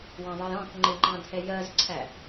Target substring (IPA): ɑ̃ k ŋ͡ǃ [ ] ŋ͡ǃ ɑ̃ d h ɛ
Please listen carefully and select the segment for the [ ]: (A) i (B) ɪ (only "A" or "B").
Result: B